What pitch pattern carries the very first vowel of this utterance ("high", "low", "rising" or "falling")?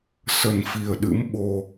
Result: low